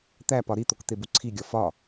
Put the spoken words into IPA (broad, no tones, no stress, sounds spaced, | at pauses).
t̪ æ p ɒ ɾ i t̪ o k t̪ e b u ǀʰ i ɡʲ ɒ f ɒ